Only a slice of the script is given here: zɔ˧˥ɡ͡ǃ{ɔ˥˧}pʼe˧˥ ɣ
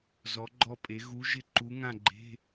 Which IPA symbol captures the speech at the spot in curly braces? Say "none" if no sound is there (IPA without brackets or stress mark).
ɔ˥˧